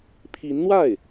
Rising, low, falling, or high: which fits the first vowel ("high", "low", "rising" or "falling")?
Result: rising